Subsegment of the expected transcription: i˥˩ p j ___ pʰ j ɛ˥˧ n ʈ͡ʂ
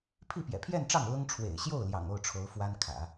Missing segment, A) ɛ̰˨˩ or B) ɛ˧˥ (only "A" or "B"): A